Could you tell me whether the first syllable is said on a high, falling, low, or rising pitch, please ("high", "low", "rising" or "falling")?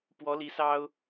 rising